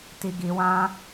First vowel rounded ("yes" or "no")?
no